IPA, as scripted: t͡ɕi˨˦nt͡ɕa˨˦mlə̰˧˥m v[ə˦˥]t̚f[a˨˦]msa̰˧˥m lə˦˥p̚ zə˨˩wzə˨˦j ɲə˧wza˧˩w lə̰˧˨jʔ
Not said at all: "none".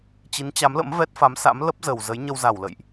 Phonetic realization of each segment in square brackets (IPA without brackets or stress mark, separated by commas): ɛ˦˥, a˨˦